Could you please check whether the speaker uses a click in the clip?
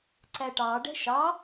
yes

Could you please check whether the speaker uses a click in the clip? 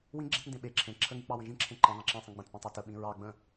yes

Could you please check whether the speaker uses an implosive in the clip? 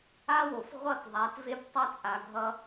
no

